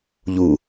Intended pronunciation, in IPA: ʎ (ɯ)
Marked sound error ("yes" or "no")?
yes